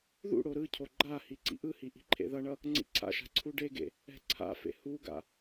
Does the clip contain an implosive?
no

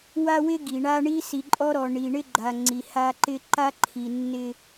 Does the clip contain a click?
yes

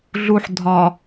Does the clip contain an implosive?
no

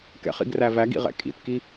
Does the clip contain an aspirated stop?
no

